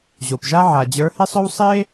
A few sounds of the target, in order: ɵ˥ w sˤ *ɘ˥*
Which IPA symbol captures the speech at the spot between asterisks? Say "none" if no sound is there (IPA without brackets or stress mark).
e˥